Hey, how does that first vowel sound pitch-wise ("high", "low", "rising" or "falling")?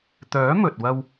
rising